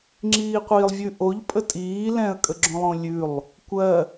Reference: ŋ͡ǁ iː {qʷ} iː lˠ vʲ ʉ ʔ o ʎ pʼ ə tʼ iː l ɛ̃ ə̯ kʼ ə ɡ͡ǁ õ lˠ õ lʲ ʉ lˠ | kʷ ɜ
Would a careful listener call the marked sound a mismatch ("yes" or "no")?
no